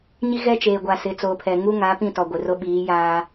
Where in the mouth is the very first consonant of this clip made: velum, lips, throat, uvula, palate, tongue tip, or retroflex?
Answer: palate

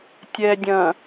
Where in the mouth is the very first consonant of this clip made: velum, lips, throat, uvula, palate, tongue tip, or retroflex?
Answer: tongue tip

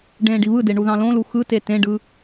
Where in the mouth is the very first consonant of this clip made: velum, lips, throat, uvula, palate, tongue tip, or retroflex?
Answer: retroflex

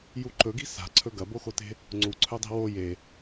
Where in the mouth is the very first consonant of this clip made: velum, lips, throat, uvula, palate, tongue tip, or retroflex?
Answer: palate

